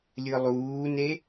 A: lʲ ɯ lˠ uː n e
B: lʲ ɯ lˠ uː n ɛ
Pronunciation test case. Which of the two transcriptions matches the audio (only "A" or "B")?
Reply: A